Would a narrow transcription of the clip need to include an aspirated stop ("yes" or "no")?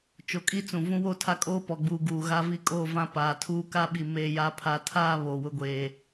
yes